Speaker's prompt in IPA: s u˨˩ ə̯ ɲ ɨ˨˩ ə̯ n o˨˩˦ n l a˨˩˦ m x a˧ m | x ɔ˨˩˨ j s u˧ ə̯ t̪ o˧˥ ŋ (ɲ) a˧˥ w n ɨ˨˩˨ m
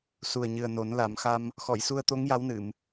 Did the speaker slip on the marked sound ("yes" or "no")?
yes